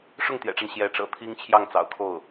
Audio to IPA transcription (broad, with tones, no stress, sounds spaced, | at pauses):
ʂ ʊ˥˩ ŋ t̪ j ɛ̰˨˩ ʈ͡ʂ a˦ n ɕ j ɛ˧˥ ʈ͡ʂ ɤ̰˨˩ t̪ʰ i˥ ŋ t͡ɕʰ j ɑ˥˩ ŋ t͡s ɑ̰˨˩ ʊ̯ kʰ o˥˩ ʊ̯